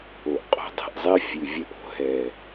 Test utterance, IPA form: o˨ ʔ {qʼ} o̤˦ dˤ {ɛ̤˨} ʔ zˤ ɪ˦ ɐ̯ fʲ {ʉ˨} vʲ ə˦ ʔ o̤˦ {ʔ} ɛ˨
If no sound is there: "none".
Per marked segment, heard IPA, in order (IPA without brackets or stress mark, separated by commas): qʼ, ɛ̤˨, ʉ˨, ɦ